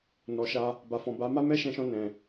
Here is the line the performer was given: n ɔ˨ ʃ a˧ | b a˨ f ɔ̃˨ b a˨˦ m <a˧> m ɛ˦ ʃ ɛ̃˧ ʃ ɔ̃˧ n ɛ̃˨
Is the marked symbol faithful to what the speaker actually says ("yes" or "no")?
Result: no